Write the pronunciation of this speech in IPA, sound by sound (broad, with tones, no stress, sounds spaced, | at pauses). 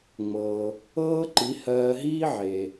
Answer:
ŋ͡m ɤː˩ | ɤː˥ ǃ i˩˥ h ɜː˧ ɦ iː˥ ʕ eː˩